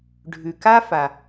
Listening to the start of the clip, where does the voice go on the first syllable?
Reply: low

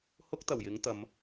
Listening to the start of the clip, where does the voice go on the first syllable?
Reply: high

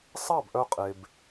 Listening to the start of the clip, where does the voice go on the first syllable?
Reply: falling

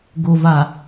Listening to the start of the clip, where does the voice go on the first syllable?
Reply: low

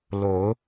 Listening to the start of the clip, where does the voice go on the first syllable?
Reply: rising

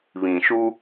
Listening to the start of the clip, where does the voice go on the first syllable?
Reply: low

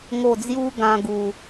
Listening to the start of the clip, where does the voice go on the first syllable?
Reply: low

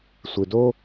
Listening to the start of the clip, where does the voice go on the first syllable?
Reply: low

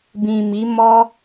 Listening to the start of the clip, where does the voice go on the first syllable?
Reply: low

